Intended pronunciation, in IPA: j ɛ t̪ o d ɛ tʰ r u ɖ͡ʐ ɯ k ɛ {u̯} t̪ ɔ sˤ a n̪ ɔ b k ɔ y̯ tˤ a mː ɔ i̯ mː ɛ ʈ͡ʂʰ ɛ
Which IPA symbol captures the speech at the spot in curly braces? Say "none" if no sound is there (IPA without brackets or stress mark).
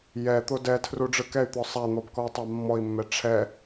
y̯